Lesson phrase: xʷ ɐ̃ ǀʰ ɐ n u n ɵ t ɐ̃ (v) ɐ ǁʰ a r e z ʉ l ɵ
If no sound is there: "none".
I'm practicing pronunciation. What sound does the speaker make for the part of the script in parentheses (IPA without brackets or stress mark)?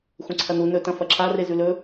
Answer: f